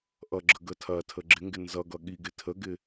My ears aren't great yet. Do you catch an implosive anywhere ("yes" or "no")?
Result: yes